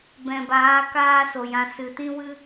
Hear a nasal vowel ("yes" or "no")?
yes